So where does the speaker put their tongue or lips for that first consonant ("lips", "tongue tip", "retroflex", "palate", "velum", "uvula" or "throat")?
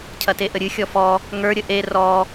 palate